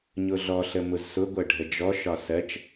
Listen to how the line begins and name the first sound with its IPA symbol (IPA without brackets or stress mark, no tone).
ɲ